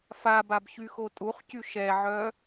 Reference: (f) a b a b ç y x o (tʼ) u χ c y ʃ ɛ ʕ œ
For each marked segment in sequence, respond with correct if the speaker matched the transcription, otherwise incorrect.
correct, correct

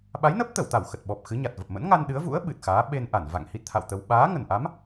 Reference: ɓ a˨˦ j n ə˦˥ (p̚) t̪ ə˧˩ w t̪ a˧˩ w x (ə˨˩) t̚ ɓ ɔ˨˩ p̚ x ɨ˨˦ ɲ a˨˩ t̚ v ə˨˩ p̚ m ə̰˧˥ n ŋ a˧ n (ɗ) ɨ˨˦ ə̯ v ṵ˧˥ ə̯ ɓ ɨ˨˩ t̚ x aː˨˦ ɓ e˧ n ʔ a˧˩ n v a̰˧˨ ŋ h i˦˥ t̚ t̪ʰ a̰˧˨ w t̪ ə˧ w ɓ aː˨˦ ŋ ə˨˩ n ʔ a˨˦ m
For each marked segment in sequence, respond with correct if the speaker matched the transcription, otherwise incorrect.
correct, correct, correct

